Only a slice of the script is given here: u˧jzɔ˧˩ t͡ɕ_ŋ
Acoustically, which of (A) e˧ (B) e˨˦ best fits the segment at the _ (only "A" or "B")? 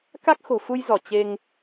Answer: A